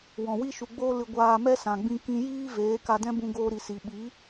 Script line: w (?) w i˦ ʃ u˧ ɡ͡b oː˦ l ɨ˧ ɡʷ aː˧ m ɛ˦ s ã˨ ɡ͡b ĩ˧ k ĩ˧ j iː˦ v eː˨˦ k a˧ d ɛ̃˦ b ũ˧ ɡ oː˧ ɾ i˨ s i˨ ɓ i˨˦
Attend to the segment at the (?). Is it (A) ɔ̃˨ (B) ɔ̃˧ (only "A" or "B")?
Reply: A